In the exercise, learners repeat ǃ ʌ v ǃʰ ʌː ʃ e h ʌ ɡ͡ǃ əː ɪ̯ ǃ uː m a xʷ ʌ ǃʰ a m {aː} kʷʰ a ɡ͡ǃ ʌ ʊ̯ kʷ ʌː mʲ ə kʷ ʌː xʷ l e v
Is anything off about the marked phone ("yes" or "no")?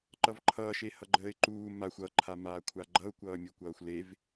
no